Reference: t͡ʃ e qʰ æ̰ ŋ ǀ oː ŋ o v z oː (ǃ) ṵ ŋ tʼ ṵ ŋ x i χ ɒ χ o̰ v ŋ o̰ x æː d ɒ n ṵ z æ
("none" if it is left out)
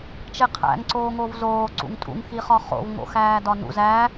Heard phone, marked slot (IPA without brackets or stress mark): ǀ